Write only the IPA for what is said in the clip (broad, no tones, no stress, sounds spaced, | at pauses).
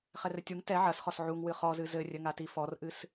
χ ɛ r ɘ tʲ u ŋ t ɛ ʕ ɐ s χ ɔ s ʕ u ŋ w ɨ χ ɔ z ɨ z ɘ rʲ ɘ ŋ a t i f ɔ r ʔ ɨ s